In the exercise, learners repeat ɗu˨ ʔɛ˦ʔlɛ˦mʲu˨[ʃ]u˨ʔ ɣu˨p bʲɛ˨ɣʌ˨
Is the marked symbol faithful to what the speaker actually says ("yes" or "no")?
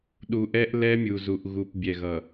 no